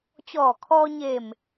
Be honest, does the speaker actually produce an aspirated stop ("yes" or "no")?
yes